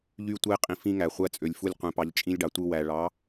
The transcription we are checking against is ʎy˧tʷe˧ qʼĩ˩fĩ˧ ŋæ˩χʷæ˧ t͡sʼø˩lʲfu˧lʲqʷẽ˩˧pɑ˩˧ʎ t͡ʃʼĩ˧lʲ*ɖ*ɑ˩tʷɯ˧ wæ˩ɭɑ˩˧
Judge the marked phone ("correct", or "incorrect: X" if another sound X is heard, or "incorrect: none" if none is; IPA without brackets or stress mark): correct